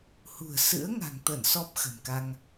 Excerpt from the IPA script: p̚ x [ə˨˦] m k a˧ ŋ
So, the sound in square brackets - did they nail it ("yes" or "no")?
no